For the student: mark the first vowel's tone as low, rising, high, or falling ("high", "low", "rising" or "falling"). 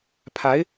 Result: rising